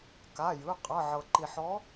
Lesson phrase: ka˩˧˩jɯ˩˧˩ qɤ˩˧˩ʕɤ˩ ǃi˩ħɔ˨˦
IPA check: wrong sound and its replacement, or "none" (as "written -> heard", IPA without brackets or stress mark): q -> qʼ